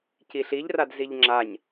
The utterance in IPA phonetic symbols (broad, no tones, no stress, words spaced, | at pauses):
ciɬiʎrad ziʎŋ͡ǁaɲ